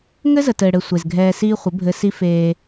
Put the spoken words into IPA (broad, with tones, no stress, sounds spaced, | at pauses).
ŋ ɘ˦ z ə˨ t ɘː˨ ɽ ɘ˨ sʷ e˨ z ɡʱ ɛː˧ s iː˦ χʷ ə˨˦ bʱ ɘ˧ s i˦ f eː˧